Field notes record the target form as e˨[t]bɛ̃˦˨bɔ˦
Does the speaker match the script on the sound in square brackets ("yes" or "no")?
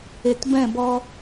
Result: yes